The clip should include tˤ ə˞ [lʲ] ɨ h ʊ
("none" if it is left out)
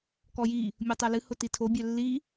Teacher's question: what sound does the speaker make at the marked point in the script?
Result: l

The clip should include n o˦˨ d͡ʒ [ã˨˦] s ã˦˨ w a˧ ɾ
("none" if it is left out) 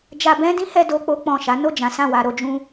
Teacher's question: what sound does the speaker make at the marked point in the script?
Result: ã˨˦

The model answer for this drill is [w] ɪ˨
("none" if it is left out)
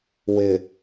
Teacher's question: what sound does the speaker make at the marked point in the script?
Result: w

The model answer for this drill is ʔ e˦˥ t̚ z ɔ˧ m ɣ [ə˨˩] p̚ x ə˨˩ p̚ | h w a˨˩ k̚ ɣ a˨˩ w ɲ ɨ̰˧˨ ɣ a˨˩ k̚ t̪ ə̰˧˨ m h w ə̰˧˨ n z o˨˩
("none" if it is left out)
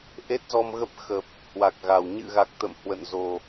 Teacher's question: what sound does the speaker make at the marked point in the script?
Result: ə˦˥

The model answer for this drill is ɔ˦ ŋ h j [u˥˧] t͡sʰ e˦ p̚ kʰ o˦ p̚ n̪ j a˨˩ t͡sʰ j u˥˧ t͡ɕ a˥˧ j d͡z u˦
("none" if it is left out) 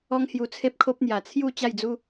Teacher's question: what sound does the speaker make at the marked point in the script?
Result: u˧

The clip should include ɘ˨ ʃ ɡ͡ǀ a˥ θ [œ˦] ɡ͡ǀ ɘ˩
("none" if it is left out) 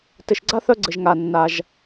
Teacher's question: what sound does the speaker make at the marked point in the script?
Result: œ˦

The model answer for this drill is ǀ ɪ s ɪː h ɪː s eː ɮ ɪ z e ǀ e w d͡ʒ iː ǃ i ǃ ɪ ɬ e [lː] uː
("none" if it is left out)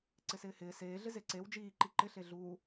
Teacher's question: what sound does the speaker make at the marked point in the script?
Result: ɮ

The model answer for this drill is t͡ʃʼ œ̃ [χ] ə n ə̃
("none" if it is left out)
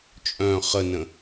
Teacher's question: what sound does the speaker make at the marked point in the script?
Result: χ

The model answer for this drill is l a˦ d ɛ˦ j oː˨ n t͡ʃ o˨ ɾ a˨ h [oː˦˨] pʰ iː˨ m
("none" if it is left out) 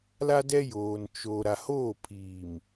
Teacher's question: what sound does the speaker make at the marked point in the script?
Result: oː˦˨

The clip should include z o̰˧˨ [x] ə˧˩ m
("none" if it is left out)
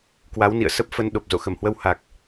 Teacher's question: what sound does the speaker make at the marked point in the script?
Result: x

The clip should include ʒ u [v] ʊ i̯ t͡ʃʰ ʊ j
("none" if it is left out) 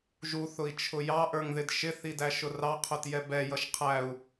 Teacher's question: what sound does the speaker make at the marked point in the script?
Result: θ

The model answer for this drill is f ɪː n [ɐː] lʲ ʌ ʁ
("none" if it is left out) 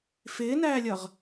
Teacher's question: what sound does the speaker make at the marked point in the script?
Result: æː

